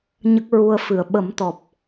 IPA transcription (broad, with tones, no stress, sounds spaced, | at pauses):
ɲ ə˦˥ k̚ ɹ u˧ ə̯ f ɨ˨˩˨ ə̯ ɓ ə˨˩˦ m t̪ ɔ˨˩ p̚